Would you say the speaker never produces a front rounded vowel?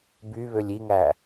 no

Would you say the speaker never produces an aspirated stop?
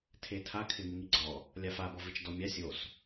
no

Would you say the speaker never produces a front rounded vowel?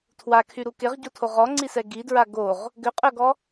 no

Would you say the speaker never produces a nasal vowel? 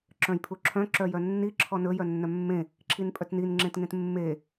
no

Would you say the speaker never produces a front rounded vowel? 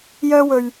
no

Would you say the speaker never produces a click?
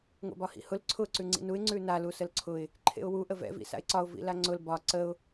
no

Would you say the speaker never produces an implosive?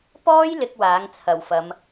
yes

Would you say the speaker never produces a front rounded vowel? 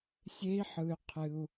no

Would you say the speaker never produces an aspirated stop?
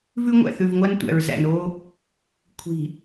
no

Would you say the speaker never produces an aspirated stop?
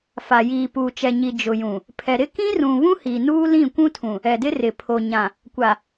no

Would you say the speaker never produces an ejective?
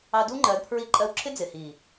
no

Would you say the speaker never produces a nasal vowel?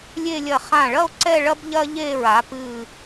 no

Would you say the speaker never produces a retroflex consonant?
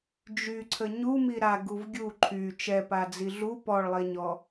no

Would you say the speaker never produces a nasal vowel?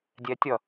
yes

